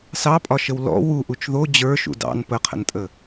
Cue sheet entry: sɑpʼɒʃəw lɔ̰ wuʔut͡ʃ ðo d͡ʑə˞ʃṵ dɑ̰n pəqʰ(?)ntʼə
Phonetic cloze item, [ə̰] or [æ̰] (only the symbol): ə̰